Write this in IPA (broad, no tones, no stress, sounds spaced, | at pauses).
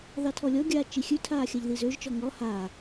ð ɑ tʰ ɔ lʲ ɔ ɡʲ aː t͡ʃ i xʲ ʉ tʰ aː xʲ a ʎ ð i z ø ʒ t͡ʃ ɔ ŋ ɔ h aː